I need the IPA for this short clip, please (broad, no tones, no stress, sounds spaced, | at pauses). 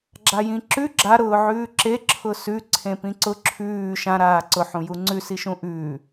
ɡ͡ǁ a j ĩ ǁ ʉ ɡ͡ǁ a ɾ ʊː ʕ ʉː ǁ e ǁʰ ʊ s ʉ ǀʰ ẽ p ĩ ǀ ʊ ǁʰ ʉː ʃ ã ɾ aː ǀ ʊ ħ ũ j u ŋ͡ǀ ʉ s i ʃ ũ ʔ ʉː